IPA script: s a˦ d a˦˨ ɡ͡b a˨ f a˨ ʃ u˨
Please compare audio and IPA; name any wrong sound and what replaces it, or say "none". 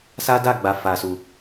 ʃ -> s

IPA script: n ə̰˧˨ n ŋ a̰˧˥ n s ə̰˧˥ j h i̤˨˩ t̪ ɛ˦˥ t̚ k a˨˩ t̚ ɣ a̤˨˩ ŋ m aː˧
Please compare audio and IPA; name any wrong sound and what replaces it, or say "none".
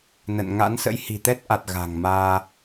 k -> ʔ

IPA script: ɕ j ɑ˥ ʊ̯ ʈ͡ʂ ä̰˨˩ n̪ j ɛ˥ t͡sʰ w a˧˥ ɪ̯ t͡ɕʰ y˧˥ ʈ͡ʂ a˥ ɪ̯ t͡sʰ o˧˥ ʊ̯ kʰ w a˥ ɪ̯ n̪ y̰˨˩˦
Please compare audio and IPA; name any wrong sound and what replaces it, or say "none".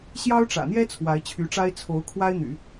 none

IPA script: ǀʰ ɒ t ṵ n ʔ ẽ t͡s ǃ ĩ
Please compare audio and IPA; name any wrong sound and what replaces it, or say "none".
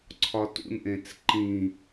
none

